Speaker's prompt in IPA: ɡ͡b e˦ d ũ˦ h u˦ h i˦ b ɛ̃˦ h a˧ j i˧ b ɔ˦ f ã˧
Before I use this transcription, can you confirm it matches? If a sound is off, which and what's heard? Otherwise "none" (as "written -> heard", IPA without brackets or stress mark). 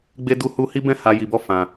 ũ˦ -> u˦